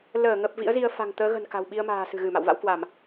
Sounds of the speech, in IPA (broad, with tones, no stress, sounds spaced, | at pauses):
l əː˧˩ ŋ ə˨˩ p̚ v ḭ˧˥ ə̯ z i˧ ə̯ f a̤˨˩ ŋ t̪ əː˨˦ ɣ ə̤˨˩ n k a̤˨˩ w ɓ i˧ ə̯ m a̤ː˨˩ s ɨ̤˨˩ ɣ ɨ˧˩ m a̰˧˨ w v a̰˧˥ w k w a˧˩˨ m